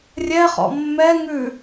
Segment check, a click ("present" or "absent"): absent